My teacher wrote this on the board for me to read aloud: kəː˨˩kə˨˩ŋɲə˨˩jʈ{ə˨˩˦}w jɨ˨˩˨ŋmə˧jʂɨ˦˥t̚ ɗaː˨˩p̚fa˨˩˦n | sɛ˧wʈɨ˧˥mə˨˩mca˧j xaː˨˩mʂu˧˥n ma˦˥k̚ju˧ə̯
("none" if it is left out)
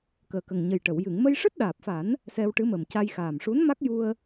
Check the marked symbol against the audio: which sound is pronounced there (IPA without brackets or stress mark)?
ə˨˩˨